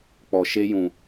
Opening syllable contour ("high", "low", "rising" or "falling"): low